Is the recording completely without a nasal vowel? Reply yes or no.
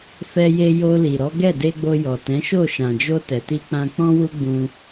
no